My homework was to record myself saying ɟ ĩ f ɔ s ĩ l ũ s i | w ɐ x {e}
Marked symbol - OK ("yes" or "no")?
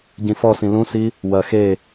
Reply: yes